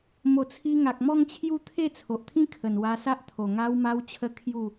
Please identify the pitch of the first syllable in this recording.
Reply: low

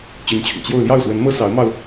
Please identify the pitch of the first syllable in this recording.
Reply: rising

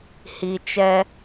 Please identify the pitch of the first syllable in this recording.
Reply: low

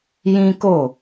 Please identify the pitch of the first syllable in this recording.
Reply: high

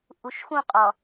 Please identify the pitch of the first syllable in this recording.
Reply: low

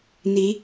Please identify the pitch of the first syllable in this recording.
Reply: rising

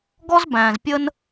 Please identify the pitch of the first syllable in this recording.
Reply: high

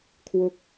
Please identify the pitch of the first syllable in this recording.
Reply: falling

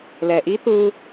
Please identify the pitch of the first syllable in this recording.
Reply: low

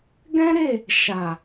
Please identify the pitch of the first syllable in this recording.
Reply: high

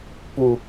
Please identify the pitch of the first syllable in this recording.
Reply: high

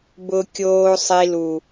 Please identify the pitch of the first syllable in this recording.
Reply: high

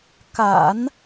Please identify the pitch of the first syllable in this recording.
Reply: low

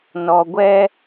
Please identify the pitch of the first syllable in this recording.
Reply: low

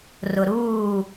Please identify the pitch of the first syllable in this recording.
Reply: low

